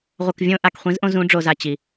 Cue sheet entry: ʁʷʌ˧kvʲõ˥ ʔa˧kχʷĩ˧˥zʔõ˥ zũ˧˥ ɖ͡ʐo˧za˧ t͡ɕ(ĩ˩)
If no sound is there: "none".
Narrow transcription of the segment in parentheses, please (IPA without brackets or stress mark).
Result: i˩